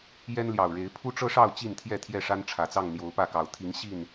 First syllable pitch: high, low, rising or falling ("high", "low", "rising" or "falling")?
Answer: high